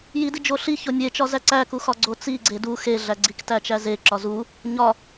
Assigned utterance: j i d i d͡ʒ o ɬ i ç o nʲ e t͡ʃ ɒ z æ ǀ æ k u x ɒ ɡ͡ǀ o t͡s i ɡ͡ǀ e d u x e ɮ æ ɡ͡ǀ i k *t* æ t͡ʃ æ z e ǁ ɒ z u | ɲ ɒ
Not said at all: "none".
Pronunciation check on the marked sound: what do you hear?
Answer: t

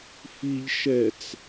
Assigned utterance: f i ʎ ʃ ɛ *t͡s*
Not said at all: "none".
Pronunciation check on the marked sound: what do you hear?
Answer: t͡s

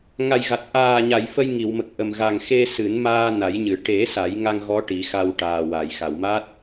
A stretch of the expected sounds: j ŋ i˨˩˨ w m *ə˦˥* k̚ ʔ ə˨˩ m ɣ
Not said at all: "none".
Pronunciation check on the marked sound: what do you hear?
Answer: ə˨˩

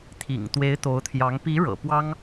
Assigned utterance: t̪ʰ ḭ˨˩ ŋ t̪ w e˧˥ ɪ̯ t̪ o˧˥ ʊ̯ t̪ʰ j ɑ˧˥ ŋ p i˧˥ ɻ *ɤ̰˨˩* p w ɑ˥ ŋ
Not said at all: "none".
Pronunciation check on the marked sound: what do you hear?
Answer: ɤ̰˨˩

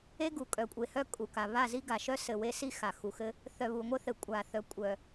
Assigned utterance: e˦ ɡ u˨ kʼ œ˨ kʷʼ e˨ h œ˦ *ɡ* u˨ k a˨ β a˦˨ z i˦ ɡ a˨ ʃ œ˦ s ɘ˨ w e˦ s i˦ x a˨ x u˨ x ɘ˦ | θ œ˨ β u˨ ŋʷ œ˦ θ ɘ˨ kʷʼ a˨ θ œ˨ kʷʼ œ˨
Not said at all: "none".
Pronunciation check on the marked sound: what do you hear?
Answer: kʼ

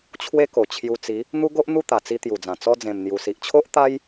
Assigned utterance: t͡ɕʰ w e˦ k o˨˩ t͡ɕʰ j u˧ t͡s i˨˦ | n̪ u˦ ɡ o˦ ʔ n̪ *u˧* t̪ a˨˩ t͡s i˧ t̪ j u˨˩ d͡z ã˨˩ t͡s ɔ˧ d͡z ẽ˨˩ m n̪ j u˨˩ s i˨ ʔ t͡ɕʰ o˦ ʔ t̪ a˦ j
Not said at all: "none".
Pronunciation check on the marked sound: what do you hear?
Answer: u˥˧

